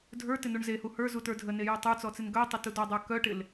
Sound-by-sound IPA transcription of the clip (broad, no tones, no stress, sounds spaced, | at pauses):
dʱ ə˞ t ɪ n u ɳ z e h u h ə˞ z u t ə˞ dʱ ə n e j ə˞ tˤ ə˞ t͡s ɔ t͡s ɪ n ɡ œ tˤ ɪ t u d ɔ dˤ ə˞ k œ ʈ ɪ l